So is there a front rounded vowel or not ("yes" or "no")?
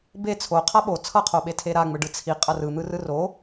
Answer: no